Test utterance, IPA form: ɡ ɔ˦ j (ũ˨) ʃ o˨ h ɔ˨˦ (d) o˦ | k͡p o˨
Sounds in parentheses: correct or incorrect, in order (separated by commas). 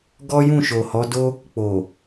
incorrect, correct